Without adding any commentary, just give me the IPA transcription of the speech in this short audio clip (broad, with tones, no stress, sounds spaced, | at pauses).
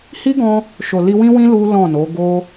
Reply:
h i˦ ɡ ɔ̃˧ | ʃ o˨ l i˧ w ĩ˦ w ĩ˦ l u˦ l ɔ̃˦˨ n o˨˦ ɡ o˦